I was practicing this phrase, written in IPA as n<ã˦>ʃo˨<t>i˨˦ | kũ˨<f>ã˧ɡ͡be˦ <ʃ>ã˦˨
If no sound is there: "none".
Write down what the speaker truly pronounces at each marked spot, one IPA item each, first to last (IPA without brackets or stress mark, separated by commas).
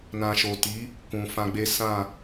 ã˨, t, f, s